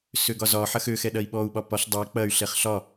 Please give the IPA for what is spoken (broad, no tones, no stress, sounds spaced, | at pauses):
s ø ɡ ɒ z ɒ ħ ɐ x ø x ɛ ɗ ɐ i̯ ɓ ɔ u̯ ɓ ɒ p ɒ ɬ dˤ ɛ k͡p ɐ y̯ ɬ ɛ χ ɬ ɒ